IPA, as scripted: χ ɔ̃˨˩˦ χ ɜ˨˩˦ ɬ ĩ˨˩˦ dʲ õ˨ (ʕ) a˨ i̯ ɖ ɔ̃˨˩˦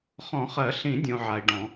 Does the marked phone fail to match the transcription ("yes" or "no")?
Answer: no